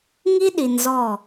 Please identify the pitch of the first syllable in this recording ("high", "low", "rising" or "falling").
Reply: high